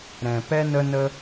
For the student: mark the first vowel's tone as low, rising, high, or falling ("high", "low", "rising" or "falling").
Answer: low